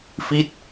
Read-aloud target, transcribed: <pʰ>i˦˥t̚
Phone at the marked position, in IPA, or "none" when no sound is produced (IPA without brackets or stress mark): f